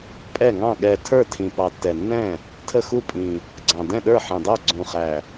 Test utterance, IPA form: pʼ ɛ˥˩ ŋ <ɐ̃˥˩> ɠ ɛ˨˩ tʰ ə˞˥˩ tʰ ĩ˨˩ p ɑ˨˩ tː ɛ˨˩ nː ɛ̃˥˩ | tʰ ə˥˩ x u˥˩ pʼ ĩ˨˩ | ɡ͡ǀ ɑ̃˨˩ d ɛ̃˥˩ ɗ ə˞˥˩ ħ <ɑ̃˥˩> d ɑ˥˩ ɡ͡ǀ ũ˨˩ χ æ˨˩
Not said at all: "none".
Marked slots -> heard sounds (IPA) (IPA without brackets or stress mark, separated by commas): ɑ̃˥˩, ɑ̃˨˩